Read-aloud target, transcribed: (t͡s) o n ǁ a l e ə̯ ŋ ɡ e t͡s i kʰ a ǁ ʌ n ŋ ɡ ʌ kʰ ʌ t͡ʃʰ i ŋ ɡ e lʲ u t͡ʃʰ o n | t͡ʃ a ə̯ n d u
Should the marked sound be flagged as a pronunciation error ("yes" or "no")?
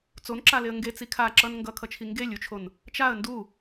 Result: no